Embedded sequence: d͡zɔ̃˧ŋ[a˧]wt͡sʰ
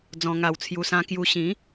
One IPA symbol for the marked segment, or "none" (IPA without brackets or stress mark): a˧